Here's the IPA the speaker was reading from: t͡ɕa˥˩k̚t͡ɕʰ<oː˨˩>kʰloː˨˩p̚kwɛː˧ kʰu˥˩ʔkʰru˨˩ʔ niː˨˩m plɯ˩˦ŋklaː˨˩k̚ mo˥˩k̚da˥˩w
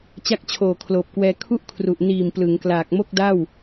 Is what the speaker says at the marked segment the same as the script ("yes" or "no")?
yes